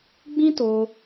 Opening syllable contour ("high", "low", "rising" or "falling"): high